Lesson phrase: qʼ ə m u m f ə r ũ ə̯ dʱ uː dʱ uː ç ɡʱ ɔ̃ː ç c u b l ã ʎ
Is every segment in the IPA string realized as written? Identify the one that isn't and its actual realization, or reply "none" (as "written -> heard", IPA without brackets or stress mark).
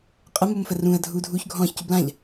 none